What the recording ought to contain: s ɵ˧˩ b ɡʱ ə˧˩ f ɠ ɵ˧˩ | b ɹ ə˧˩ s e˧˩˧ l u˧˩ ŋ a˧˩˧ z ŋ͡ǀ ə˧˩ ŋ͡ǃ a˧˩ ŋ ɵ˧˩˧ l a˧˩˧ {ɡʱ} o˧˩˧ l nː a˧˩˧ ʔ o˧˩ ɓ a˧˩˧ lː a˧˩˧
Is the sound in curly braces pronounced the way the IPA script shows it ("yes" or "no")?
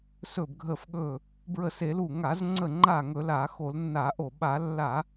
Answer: no